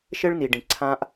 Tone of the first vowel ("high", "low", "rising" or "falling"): high